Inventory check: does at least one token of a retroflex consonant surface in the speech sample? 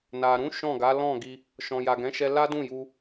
no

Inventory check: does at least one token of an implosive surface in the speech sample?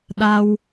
yes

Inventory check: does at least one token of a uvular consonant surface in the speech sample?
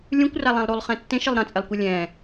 yes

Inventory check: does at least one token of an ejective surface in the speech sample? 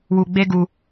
no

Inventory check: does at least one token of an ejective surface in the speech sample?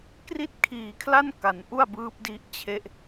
no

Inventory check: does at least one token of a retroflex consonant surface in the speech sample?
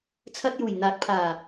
no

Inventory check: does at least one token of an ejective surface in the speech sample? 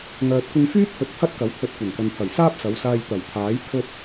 no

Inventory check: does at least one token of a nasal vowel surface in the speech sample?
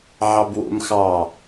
no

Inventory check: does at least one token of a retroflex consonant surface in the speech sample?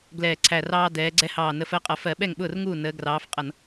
no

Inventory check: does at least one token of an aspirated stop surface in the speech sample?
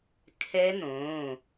yes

